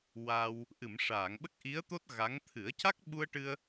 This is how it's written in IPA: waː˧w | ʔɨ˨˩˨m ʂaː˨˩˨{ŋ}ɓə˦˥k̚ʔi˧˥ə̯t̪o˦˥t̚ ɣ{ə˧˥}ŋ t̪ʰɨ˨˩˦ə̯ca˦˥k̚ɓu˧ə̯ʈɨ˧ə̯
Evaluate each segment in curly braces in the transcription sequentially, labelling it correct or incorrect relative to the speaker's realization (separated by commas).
correct, incorrect